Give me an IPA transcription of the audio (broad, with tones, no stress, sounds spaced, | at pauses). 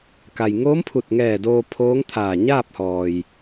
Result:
k a˩ j ŋ oː˧˥ m pʰ u˧˩ t̚ ŋ ɛː˧˩ d oː˧ pʰ oː˧˥ ŋ t̪ʰ aː˧˩ ɲ aː˥˨ p̚ h ɔː˩ j